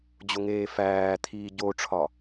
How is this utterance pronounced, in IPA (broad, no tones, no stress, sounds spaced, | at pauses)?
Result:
d͡ʑ o ŋ eː f æː t̪ʰ iː ɟ o ʈ͡ʂʰ ɒ